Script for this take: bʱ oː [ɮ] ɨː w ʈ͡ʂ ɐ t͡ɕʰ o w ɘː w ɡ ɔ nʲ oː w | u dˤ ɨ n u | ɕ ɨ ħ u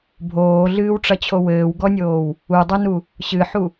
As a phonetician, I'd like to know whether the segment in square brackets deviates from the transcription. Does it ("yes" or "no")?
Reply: no